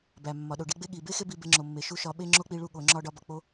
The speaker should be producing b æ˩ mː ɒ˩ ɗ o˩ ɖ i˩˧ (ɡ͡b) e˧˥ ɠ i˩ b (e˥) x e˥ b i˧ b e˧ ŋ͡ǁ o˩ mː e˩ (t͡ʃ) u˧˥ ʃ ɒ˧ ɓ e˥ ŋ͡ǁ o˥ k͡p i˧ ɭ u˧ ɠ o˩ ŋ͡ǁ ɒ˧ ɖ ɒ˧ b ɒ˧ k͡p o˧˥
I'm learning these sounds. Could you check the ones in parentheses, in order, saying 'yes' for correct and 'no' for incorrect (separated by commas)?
yes, yes, no